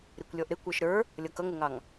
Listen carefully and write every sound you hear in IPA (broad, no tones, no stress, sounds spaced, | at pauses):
ɾ i kʷ lʲ ɔ ʔ ɾ ɪ kʷ ə˞ ʃ ɾ ə˞ | lʲ ʌ k ʌ ŋ ʊ ŋ ɑ ŋ